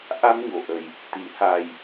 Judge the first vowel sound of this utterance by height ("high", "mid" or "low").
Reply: low